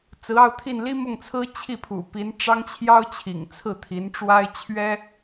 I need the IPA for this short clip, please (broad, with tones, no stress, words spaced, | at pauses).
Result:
t͡sɹ̩˧˥ɑ˥˧ʊ̯t̪ʰi˥˩n li˥mʊ˥˩ŋt͡sʰɹ̩˥ t͡ɕʰi˥˩pʰṵ˨˩pi˧˥n ʈ͡ʂɑ˥ŋt͡ɕʰjɑ˥ʊ̯t͡ɕʰḭ˨˩ŋt͡sʰɹ̩˥˩ t̪ʰi˧˥nʈ͡ʂwa˥ɪ̯t͡ɕʰɥɛ˥